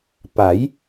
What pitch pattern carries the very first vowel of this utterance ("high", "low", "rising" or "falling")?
rising